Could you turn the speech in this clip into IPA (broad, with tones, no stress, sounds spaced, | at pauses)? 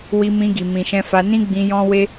w i˧ m ĩ˧ ɡ i˨ m ĩ˨ ʃ ɛ̃˧ f a˧ n ĩ˦ ɡ͡b ĩ˧ j ɔ̃˦ w e˦